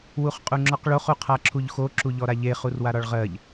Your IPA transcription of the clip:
w u χ qʼ u ŋ͡ǁ ɔ q ɭ o χ u qʰ a ǁʰ u ʎ x o ǁ u ʎ ɔ ɾ a ʎ e χ u r w a ɾ ɒ ɭ ʁ ɜ ʎ

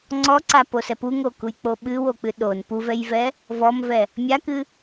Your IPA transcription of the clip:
ŋ͡ǀ ɔ ǀ a p o s ɛ p u ŋ o k u j k͡p o ɓ ɨ w o k͡p ɨ ɗ o n p u v ɛ j v ɛ | v ɔ m v ɛ | mʲ a k ɨ

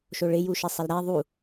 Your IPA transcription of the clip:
ʃ o ɭ ɪ j u ʃ ɛ sˤ ɛ l ɾ æ ðˤ u

